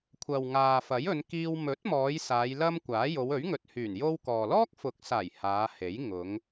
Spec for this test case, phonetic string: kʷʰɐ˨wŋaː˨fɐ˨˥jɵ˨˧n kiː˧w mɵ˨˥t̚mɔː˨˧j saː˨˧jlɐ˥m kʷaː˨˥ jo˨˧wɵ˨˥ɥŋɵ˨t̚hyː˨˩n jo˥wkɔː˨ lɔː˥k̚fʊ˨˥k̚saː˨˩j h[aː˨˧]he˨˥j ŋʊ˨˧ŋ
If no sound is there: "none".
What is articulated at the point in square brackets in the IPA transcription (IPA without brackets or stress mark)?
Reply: aː˨˧